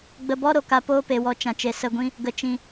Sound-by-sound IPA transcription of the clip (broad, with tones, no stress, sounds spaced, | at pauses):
ɡ͡b ə˨ b ɔ˧ ɾ o˨ k a˧ p oː˦ p e˨ w ɔ˨ t͡ʃ ã˨ t͡ʃ e˨ s ə˧ ɡʷ ĩ˦ | ɡ ə˨ t͡ʃ ĩ˨